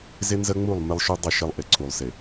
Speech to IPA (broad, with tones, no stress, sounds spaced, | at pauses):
z ɪ˦ n z ə˦ ŋ͡m u˦˨ lˠ m ɪ˦ lˠ ʃ ʉ˦ dˤ ɪ˦˨ ʃ ɪ˦ lˠ ʔ ɪ˨ ǀʰ u˨ lˠ s ɪ˨